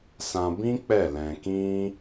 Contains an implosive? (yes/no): no